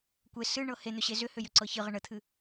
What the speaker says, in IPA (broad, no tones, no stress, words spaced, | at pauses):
kʷe sɨɳɤ hen̪ʏɕe zʏhʏjʏǀɤ çɨʁə ɳət̪ʰɨ